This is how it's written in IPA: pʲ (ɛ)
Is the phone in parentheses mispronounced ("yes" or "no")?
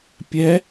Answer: no